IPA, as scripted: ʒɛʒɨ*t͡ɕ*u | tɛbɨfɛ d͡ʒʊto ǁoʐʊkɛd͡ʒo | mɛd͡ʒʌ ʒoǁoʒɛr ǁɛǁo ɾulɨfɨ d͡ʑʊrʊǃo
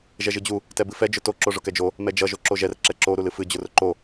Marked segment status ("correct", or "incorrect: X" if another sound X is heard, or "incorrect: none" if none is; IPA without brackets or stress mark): incorrect: d͡ʑ